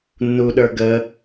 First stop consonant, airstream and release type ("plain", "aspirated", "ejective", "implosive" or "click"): implosive